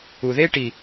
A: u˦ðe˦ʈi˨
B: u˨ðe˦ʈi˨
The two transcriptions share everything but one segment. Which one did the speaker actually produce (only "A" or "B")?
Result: B